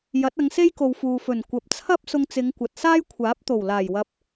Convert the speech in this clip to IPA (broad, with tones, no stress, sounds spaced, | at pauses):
j ɐ˨˥ t̚ ɐ˨˧ ŋ s e˥ j k o˨ w f uː˨ f ɵ˨˩ n kʷ ɐ˨ p̚ t͡sʰ ɐ˥ p̚ s ʊ˥ ŋ t͡s ɪ˨˧ ŋ kʷ ɐ˨ t̚ s aː˥ j kʷʰ aː˨˥ p̚ t̪ o˨˩ w l aː˨˩ j w ɐ˨˥ p̚